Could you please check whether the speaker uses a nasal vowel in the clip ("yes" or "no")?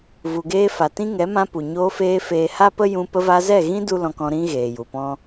yes